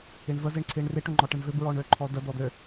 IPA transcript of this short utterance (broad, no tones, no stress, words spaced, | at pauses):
iɳvəziɳ ǀʰiɳriʈ øŋ͡ǃɔʈəɳvøb ɹɔɳøǃʰɔdə d̪ɔd̪ø